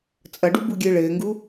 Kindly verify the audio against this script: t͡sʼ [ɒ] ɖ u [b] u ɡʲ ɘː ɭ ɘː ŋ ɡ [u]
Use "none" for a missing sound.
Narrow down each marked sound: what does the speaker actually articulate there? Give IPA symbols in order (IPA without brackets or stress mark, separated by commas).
ʌ, b, u